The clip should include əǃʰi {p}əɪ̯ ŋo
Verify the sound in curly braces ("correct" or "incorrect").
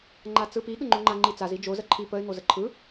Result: correct